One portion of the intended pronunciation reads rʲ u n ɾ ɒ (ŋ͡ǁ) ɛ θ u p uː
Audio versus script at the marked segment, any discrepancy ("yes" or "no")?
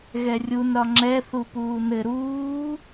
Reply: no